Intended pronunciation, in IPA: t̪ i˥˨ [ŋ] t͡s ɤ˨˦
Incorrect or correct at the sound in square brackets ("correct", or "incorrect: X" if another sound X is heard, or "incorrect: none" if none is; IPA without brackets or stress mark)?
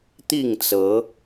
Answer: correct